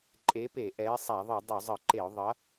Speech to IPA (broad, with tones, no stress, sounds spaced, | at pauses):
ǃʼ e˨˥ p e˧˩˧ ʔ ɛ˨˥ ɪ̯ sˤ a˧˩˧ ðˤ ɯ˧˩˧ dˤ u˧˩˧ zˤ ɯ˧˩˧ ǃ e˧˩˧ ʊ̯ ðˤ ʌ˨˥